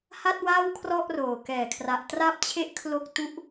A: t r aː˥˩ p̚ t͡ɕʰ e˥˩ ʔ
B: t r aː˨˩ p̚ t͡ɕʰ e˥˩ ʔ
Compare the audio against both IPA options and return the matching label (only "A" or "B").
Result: A